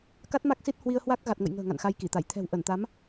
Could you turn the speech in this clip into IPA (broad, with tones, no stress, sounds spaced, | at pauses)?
k a˦˥ t̚ m a˦˥ k̚ s i˦˥ t̚ h w i˧ ə̯ h w a˦˥ k̚ ɣ a˨˩ t̚ ŋ ə̰˧˨ j ŋ ə̤ː˨˩ ŋ a̰˧˨ n x a˧ j k i˧˩ t̪ a˧˩ j t̪ʰ ɛ̤˨˩ w ʔ ə˧˩ n t̪ a˨˦ m